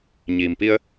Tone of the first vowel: low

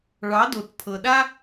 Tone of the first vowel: rising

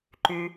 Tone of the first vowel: low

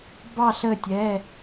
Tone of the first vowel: falling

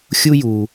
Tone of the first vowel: high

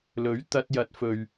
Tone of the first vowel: rising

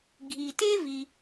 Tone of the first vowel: low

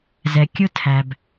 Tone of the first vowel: low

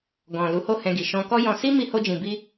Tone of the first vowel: low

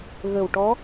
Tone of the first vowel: low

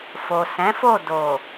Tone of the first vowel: low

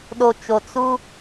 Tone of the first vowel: low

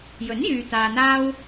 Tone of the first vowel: rising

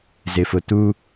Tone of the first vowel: low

